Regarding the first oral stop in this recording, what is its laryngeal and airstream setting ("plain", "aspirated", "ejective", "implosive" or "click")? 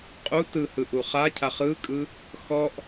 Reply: ejective